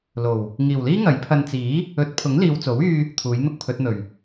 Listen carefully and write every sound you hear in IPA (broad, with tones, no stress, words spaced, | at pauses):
lo˨˩w | ŋiː˨˩wliː˥ ŋɐ˨˥jpʰɐ˧n t͡siː˨˥ | ɵ˨˥t̚pʰʊ˨˥ŋ liː˨wt͡so˨˥wyː˧ | t̪ʰuː˨˥jn̪ʊ˥k̚pʰɵ˨˥t̚n̪ɵ˨˩ɥ